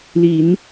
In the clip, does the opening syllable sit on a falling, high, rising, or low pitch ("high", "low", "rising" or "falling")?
low